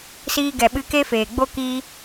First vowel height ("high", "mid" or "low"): high